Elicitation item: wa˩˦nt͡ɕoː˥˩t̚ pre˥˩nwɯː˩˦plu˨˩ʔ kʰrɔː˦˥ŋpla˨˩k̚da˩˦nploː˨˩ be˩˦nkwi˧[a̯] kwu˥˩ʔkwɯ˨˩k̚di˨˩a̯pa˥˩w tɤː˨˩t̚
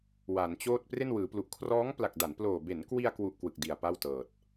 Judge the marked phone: correct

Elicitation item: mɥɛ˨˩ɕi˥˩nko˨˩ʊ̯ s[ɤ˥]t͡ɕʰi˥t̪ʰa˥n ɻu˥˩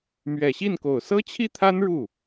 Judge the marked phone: correct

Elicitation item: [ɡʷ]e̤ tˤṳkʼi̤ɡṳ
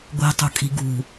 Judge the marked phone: correct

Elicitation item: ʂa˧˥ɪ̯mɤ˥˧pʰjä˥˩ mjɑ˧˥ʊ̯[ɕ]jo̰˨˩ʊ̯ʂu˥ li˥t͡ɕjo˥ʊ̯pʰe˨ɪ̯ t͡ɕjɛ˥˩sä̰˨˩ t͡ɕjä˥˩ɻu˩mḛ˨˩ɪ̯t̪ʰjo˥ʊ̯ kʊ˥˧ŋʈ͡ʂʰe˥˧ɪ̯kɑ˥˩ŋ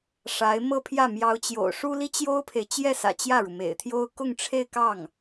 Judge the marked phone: incorrect: t͡ɕ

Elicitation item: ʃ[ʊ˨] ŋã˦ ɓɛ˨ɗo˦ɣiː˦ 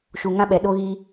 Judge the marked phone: incorrect: u˨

